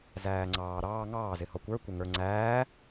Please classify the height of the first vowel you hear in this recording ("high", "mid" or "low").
low